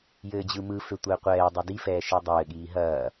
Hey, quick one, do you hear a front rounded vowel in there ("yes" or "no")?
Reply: yes